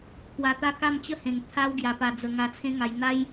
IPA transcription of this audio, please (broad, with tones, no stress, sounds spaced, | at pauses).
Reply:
k w a˧ t̪ a˦ k a˥˧ m t͡ɕ ə˥˧ h ẽ˨˩ ŋ t̪ʰ a˦ w ɡ j a˧ p a˧ d͡z ə˧ ŋ a˧ t͡sʰ ẽ˦ ŋ a˧ j n̪ a˦ j